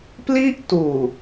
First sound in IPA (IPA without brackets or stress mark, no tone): p